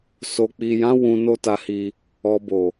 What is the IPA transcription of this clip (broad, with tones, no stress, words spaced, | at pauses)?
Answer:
so˨k͡pi˨jã˨˦ wũ˧no˦ta˧hi˧ | ɔ˨bo˨